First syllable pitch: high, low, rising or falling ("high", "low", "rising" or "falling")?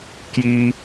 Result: high